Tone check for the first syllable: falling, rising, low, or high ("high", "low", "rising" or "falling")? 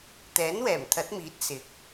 rising